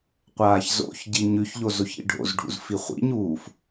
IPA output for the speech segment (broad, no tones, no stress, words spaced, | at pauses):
qʷaːçzo̰çɟi ɲʉçʎo zoçḭɖʱo̰zɖʱṵz fiχʷḭɲuːf